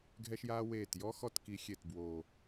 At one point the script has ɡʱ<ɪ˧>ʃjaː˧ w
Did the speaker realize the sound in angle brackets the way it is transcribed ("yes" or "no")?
no